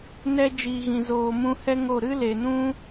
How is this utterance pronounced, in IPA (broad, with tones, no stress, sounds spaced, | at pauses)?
n ɛ˧ d͡ʒ iː˨ ɣ ĩ˨ z oː˨ m ũ˧ h ɛ˦ ŋ o˦˨ ɾ ɨ˦ l e˨ n ũ˦